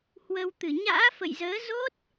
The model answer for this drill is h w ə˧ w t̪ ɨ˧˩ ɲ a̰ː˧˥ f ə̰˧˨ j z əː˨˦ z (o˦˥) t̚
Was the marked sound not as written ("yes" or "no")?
no